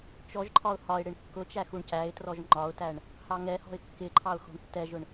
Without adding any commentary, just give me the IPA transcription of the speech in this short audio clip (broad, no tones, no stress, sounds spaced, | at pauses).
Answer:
t͡ʃ ɔ ʒ ǃʰ ɒ ʊ̯ h ɒ ɪ̯ ɽ ɪ ɳ kː ʊ t͡ʃ æ x u ɳ c æ ɪ̯ t r ɔ ʒ ŋ͡ǃ ɒ ʊ̯ t æ ɳ | h ɑ ŋ ɛ h ɔ̤ ɪ̯ kː ɪ ǃʰ ɑ ʊ̯ x ɔ̤ ɳ tː ɛ ʒ ʊ ɳ